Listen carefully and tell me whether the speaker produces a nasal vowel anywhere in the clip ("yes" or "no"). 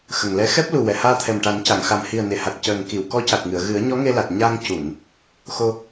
no